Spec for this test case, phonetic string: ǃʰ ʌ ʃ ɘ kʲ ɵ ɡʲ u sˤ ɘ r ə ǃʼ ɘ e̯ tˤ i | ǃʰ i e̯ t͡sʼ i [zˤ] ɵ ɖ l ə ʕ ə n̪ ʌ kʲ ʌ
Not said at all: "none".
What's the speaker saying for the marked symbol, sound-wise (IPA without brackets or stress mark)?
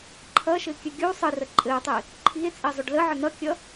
zˤ